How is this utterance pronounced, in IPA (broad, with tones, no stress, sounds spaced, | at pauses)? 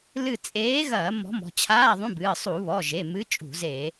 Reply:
l ɨ˦˨ t͡sʼ eː˨˥ ɣ ɐː˧˩˧ m ɔ̤˨˥ m ɔ̤˩˧˩ t͡ɕʰ aː˧˥˧ ðˤ ũ˧˥˧ b ɨː˩˧˩ sˤ u˧˩˧ β ɔ˩˧˩ ʒ e˩˧˩ m ɨ˨˥ t͡ʃʼ ṳ˧˩˧ z eː˧˩˧